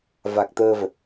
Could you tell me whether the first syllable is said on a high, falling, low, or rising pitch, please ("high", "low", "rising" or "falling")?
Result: low